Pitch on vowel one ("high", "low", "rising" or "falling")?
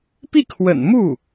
falling